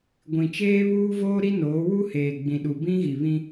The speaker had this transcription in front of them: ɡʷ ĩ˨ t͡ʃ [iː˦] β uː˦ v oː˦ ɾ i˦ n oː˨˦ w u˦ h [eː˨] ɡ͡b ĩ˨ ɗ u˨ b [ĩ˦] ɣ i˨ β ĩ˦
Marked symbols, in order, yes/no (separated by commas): no, yes, yes